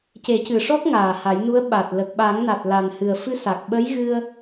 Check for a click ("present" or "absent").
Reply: absent